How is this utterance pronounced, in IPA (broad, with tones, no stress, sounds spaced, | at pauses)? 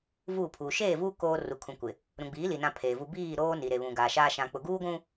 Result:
v uː˦˨ pʰ uː˨ ʃ eː˦˨ v uː˦ k oː˦ r u˨ kʰ ũ˨ kʷ ɪ˨ | ɾ ũ˨ ɡ͡b iː˨˦ l i˨ n ã˦ pʰ eː˨ v u˦ b iː˦˨ ɾ oː˦ n i˨ ɾ e˨ β ũ˨ ɡ aː˨ ʃ aː˦ ʃ ã˦ k͡p ʊ˨ ɡ uː˦ ɡʷ ũ˦